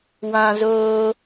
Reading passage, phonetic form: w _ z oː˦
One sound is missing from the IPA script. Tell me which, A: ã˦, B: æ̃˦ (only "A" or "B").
A